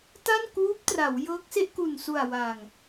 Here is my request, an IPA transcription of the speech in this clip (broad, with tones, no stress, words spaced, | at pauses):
ta˥˩nkuː˦˥p̚tra˩˦w jɤː˦˥k̚se˥˩ʔku˨˩nsu˨˩a̯ wa˨˩ŋ